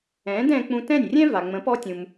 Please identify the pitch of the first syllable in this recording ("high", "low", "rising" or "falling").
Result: rising